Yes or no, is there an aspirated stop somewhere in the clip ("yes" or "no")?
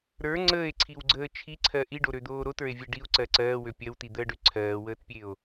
yes